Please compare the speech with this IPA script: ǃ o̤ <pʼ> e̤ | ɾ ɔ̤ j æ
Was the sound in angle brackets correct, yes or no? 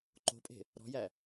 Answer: yes